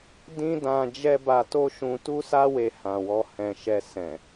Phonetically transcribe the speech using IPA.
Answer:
dĩ˦dã˧ d͡ʒɛ˦ ba˧to˦ʃũ˧ tu˦sa˦ we˧hã˨wɔ˧ hɛ̃˨ ʃɛ˧ sɛ̃˨

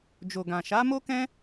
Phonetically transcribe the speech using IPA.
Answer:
d͡ʒo˨ɡã˨ ʃa˨˦mo˦kɛ̃˦

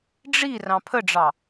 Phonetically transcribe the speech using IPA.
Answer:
ɖ͡ʐirɑ̃ pʰəɖ͡ʐɑ

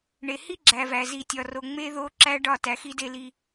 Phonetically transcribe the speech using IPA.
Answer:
ɳe˨hi˦ɡ͡ǁæ˨væ˨ zi˨tʲɒ˨ro˨ ŋ͡me˦ðo˦ǁæ˦ ɖɒ˦˨ tæ˨xi˦de˦li˦

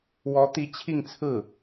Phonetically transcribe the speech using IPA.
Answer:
wɔ˧˥ t̪i˧˥t͡ɕʰi˥˧ŋt͡sʰɹ̩˥˩

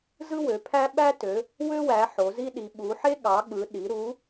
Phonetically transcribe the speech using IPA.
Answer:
zɯ˥wø˨˦pʰæ˥ ɓæ˥tø˨˦ | wø˥wæ˨˦ ħo˨˦zi˥ɗi˨˦ ɓu˨˦ħe˥ ɠɑ˨˦ ɠɯ˨˦ ɗi˨˦ ɾu˨˦

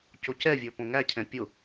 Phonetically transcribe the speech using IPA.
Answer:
cocɛvʲə˞ põŋæcʰɛ̃ pʲʊ

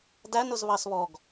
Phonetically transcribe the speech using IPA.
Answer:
dæn ʊzβɑsβɔɡ

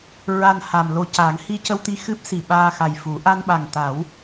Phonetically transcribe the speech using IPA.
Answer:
ɹa˨˩n ha˨˩mlo˧ca˨˩˦ŋ hi˧cə˧wt̪i˧ xɨ˦˥p̚si˨˩ ɓaː˧xa˨˩j fu˨˩˦ ʔa˧nɓa˨˩ŋt̪a˨˩˦w

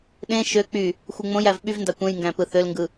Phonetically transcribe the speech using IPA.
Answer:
ɗẽ ʃø k͡py | xʷɯŋ͡mõj ævɓyvndɑ kʷẽjŋɡæ̃pɯ θølŋɡɯ

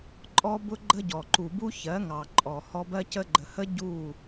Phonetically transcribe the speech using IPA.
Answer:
ǃʼɔ˦bʊ˦ɡ͡ǃə˦ɟɔ˨ ǃu˨bu˦ çɜ˨˦ŋɑ˨ǃʼɔ˨ hɔ˧bɜ˦ cə˧ɡ͡ǃə˨hə˦ ɟu˦˨

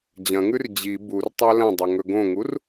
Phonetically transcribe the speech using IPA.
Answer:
d͡ʑɐ̃ŋʉr d͡ʑi burtˤa lɐ̃dˤɵ ŋɵɡõŋur

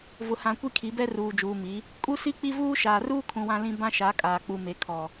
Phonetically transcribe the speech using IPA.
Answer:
vʊ˨hã˨ kʷi˦kʰi˨˦bɛ˦ ruː˨d͡ʒuː˨mi˨˦ | kʼu˦ si˦k͡pi˦vuː˦ ʃaː˨ruː˦ kʰũ˨wã˦lĩ˦ bã˦ʃa˨˦kʼaː˨ k͡pu˨me˨ kʰɔ˨

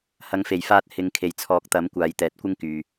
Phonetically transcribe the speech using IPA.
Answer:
hɐ˨˧ŋfe˨˩jfaː˧t̚ hɪ˨ŋ kʰe˨˩jt͡sʰɔː˨˥k̚t̪ɐ˨˥m kʷaː˨˧jt̪ɛː˨˥t̚kʷɪ˥ŋ kyː˨

